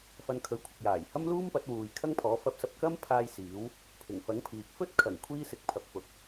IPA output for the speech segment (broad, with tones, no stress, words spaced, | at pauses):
fɐ˧nkʰɵ˨˧ɥkʷʰɪ˨k̚ jaː˨˩jhɐ˥mluː˥m pɐ˨˥t̚wuː˨jkʰɐ˥ŋpʰɔː˨˥ fɐ˧p̚sɐ˧p̚kɐ˥mpʰaː˧j siː˨˥w | pʰɪ˨˩ŋfɐ˨˥ŋpʰiː˨k̚ fɵ˥t̚kʰɐ˨˩ŋ kʷʰiː˥sɪ˨˥k̚pʰɐ˨p̚ fʊ˨˥k̚